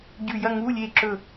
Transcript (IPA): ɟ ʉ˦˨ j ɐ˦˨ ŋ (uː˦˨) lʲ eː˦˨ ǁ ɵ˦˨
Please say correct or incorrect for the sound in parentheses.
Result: incorrect: uː˧˥˧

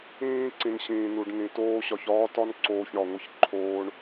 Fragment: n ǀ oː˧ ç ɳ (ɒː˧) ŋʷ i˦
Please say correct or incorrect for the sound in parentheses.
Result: incorrect: ɒ˧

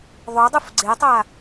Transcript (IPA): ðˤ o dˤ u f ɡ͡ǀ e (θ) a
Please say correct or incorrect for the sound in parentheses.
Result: incorrect: tˤ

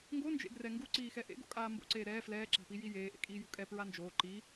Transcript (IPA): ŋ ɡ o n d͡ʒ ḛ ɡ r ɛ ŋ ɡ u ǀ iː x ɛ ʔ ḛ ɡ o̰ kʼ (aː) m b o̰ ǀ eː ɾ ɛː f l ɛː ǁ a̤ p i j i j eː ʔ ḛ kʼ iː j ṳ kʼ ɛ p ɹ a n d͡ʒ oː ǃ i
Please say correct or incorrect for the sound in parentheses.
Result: correct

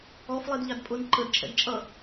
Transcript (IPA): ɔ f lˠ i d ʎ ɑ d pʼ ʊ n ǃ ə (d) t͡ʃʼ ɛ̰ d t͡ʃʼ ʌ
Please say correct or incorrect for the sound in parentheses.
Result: correct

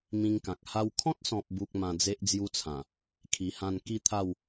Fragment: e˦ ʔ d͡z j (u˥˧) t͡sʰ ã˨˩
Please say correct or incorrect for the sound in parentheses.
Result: incorrect: u˦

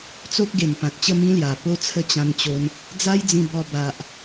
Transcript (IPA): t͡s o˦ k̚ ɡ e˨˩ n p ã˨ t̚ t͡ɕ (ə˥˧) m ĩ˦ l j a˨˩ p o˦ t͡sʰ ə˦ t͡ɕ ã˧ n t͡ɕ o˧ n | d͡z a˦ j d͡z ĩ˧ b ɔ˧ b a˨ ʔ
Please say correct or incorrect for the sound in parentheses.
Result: correct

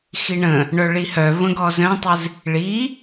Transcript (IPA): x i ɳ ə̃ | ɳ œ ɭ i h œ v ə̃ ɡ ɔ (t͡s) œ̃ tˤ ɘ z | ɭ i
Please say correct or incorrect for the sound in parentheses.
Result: incorrect: z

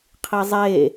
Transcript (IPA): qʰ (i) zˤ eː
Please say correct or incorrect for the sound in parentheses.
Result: correct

